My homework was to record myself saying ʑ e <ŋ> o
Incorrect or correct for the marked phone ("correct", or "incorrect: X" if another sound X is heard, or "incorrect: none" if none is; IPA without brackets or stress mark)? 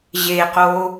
incorrect: q